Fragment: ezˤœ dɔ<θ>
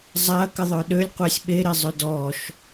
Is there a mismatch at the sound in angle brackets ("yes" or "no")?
yes